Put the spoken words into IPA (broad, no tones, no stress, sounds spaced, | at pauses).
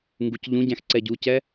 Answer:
ŋ ɡ u c ʎ ũ ɟ æ̃ x ǀ ɛ ɟ u c ɛ